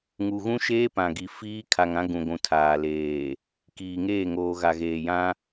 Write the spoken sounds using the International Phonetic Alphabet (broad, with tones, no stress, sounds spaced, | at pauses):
ŋ u˨ ɣ ũ˦ ʃ eː˦ p ã˨ ɡ i˨ f iː˦ kʰ a˨ ŋ ã˦ ɡ ũ˨ ɡʷ ũ˨ tʰ aː˨ l eː˨ | k iː˨ ŋ eː˦˨ ŋ oː˨ ɣ a˨ ɣ eː˨ j ã˦